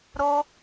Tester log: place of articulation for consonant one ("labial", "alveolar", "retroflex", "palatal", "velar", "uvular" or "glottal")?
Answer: alveolar